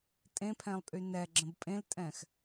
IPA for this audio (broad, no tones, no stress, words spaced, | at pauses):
tʼẽpʰɛ̃lˠpʼy nɛɡ͡ǁə̃b pʼẽltʼɛ̃x